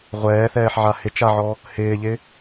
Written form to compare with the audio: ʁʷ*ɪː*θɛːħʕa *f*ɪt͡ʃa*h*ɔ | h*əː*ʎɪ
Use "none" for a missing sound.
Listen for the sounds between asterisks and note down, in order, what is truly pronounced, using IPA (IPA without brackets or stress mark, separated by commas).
ɛː, h, ʕ, ɪː